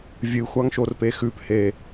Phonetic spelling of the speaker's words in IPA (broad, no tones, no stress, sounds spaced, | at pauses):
vʲ ɨ xʷ a ŋ ʃ o r p e x ʉ p h e